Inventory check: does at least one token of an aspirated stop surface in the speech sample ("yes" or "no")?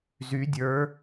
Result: no